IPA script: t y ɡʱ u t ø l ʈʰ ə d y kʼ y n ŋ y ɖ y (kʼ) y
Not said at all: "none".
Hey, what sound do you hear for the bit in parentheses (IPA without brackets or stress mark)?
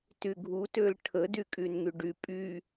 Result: pʼ